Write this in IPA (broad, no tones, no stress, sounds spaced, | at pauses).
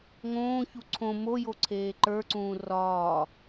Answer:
ŋ õː ç u ǀʰ õ m o j o ǀʰ eː ǃ ə˞ ǀ ũː r ɒː